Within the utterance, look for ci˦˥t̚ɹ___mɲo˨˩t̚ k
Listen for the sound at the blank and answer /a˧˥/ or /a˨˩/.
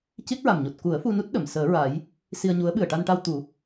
a˨˩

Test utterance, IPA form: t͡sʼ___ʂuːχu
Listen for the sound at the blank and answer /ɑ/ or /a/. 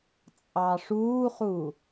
ɑ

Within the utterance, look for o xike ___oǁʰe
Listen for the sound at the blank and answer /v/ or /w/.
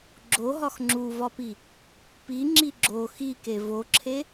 v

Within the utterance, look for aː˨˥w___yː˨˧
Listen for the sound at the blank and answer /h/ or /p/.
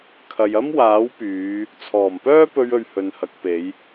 p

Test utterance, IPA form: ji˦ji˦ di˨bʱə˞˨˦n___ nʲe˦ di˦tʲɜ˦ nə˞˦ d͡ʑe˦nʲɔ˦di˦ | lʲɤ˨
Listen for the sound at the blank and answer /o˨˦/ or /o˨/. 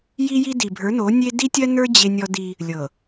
o˨˦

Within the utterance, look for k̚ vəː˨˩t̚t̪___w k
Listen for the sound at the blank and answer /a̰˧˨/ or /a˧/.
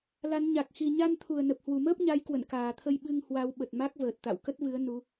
a̰˧˨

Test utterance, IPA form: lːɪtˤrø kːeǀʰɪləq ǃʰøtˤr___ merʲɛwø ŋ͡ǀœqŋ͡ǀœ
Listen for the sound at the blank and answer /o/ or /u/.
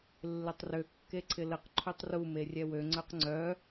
u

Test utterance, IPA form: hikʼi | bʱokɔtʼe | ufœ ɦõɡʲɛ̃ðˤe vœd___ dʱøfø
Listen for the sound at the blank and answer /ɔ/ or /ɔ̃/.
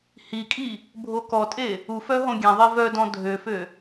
ɔ̃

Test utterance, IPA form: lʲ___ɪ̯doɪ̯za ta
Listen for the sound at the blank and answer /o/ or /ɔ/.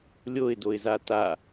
o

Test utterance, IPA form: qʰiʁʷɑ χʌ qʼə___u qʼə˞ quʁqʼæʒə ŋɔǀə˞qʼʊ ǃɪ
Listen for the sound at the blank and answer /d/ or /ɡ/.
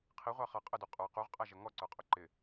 d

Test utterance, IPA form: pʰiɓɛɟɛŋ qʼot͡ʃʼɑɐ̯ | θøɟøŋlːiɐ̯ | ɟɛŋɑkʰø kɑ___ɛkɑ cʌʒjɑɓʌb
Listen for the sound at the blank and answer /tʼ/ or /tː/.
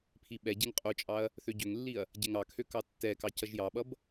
tː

